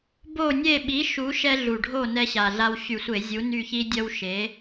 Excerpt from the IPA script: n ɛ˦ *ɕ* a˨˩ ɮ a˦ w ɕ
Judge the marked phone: correct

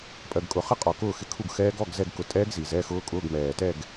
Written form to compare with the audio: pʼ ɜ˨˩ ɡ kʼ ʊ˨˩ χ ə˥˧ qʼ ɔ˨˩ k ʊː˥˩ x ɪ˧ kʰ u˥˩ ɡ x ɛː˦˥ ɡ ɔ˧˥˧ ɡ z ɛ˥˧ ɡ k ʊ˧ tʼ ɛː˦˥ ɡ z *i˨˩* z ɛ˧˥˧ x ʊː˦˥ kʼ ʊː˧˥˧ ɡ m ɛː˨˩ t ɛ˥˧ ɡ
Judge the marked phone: correct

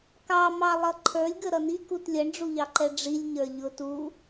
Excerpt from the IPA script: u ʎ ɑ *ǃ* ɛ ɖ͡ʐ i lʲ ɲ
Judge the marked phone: correct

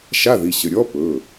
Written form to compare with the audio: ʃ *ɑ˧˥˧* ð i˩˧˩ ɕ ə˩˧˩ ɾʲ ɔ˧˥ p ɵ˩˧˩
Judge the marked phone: incorrect: a˧˥˧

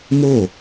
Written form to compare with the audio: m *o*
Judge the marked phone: correct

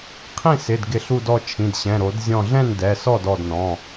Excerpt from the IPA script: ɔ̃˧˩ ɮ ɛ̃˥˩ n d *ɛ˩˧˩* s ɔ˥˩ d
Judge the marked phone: correct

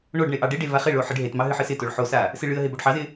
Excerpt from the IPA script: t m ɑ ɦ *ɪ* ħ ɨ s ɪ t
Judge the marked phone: incorrect: ɨ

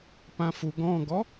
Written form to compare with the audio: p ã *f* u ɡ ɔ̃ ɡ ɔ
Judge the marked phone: correct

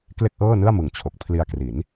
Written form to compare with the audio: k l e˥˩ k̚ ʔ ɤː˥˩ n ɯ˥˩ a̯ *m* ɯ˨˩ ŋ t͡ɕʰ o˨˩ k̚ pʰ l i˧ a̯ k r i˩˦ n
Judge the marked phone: correct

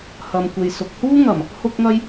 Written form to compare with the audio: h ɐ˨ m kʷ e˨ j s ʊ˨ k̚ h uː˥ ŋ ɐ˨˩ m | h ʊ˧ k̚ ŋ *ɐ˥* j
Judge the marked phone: incorrect: ɐ˧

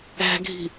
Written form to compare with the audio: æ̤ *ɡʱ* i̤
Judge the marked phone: correct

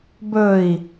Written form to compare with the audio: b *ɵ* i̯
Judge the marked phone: correct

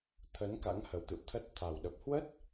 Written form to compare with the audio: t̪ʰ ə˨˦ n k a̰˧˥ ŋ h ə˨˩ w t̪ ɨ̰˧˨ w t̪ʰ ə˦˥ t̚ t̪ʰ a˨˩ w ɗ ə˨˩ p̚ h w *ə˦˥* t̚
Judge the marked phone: correct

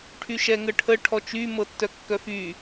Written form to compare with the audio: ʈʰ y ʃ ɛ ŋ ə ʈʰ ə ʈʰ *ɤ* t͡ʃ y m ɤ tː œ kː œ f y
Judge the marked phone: incorrect: ɔ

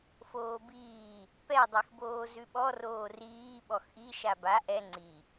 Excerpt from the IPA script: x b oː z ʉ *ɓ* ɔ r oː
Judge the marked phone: correct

